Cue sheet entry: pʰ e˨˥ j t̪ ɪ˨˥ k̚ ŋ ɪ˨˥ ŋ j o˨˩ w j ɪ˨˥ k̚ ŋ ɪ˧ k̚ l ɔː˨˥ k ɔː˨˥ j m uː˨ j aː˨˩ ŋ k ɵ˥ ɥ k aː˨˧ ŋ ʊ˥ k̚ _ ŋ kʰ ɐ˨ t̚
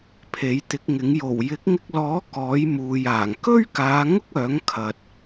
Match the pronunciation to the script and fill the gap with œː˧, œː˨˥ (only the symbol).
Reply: œː˨˥